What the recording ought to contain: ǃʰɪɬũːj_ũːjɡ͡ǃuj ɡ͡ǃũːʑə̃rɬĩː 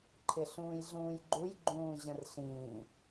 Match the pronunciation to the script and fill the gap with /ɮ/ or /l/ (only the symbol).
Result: ɮ